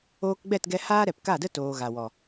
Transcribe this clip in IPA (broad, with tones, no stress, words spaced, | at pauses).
oː˧kɡ͡bɛ˦˨tɡɛ˧ haː˦ɾɛ˨pka˦˨də˦ toː˨ɣa˨wɔ˨